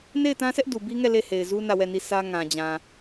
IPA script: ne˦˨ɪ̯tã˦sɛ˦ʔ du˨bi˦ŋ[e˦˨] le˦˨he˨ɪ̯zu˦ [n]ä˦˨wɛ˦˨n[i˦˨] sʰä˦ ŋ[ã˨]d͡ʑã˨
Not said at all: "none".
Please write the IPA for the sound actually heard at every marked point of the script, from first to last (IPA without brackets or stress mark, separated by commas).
ɛ˦˨, n, i˦˨, ã˨